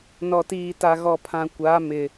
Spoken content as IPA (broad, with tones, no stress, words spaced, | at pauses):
nɔ˨tiː˨ ta˨ɣɔ˨pʰã˨ kʷa˨˦mɪ˨